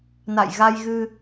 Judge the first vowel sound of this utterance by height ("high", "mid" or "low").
low